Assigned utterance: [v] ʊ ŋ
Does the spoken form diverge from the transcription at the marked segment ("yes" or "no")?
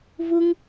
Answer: no